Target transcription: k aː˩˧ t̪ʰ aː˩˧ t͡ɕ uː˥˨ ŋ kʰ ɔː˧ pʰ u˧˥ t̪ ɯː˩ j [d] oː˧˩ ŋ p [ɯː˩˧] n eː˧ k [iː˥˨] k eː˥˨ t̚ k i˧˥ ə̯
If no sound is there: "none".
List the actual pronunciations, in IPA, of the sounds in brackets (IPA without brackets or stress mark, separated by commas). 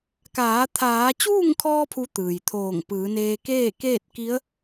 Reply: t̪ʰ, ɯː˩˧, eː˥˨